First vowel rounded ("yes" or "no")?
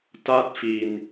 no